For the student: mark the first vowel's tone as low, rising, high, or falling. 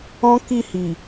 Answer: high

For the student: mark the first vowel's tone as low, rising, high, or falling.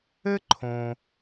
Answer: high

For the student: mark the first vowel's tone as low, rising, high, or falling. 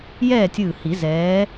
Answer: falling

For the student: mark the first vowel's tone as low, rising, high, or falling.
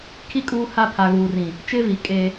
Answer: high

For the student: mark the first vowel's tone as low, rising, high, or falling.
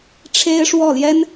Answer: high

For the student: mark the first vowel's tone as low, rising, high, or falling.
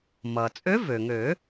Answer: low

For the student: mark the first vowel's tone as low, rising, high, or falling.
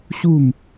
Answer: falling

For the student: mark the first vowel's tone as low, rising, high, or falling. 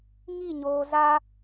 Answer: falling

